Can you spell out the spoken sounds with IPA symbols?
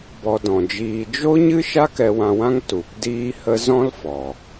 b ɔ˧ d ɔ̃˨ d͡ʒ iː˧ d͡ʒ o˦ ɲ ɨ˦ ʃ a˦ k ɛ˧ w ã˧ w ã˦ ŋ t u˨ p d iː˦ h ə˦ z ɔ̃˦ l f ɔ˨

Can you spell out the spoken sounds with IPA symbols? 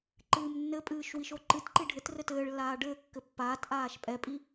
ǃ ɨː m nː ɘ pʼ ɨː ʃ w i ʃ o ǃ ɨ t ǃ i ɖʱ ɘ t r ɘ t ɘː ɭ lː aː ɖ ɘː kː ɘ pː aː t ʔ aː ʃ pʼ ɛ pʼ i

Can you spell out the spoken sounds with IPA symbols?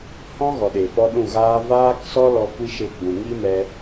h ɔ̃˦ ɣ ɔ˨ ɗ e˨ f ɔ˧ ɗ ũ˦˨ ɣ aː˦ v aː˦ k s ɔ˦ l ɔ˧ kʷ i˦ ʃ e˧ ɡ͡b ũ˨ ŋ i˦ m ɛ˧

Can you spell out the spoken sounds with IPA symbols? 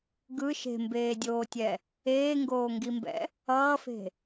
ɡ ɯ ʃ e̤ m b eː dʲ oː tʲ ɛ | eː ŋ ɡ oː ŋ ɡ i m b ɛ̰ | ʌː f e̤

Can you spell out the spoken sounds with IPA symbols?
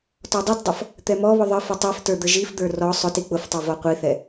t ɔ dˤ i t dˤ ʌ f | t̪ ɛ m ɔ β ʊ ðˤ ə f ʌ tˤ i f t ə˞ d̪ ə ʒ i f d̪ ə˞ r ɔ sˤ ʊ t i k͡p ʊ f tˤ ʌ v ɔ qʷ i θ ɛ

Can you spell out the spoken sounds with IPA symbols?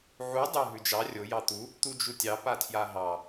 ʕ u dˤ ʉ ɦ ʉ d͡ʒ ɑ rʲ o j ɑ t̪ u | t̪ u d͡ʒ u tʲ ɑ p a tʰ j a ɦ ɑ

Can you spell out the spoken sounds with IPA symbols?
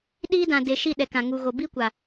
ɗ iː˦ d ã˨ d eː˨ ʃ i˦˨ ɗ ɛ˨ k ã˨ ŋ u˨ ɣ o˨ b i˦ kʷ a˨

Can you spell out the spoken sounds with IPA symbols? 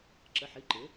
ǁ ə˩˧˩ ħ i˩˧˩ ǃ ɪ˩˥

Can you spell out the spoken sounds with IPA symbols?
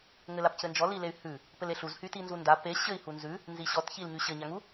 ŋ ɘ l a p c ɘ n d͡ʒ ɔ l i l e y̯ h ʉ | p ɘ l e ɬ u z h y t i n z u n d a p e ɕ ɘ i̯ h u n z ʉ | n z i ɕ ɔ t ç i l ɲ y ɕ ɘ ɲ a ŋ u

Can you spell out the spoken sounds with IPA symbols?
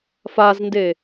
f a z n d e

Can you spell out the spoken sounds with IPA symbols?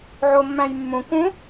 ʕ o mː æ̃ j mː ũ k ũ

